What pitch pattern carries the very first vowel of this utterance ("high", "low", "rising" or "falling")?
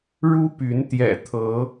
high